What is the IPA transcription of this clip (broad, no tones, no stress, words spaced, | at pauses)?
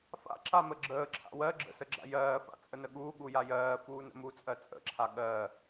fa̰ ǁaməɡ͡ǁəː ǁʰa̰wɜ ɡ͡ǁə̰səɡ͡ǁa̰ jɜːfa̰ t͡sʼənəɠuː ɠujajɜː fuːnə̰mut͡sʼɜ t͡sʼə̰ǁʰa ɠɜː